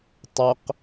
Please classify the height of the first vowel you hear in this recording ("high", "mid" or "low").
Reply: mid